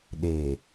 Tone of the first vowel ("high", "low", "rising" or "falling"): low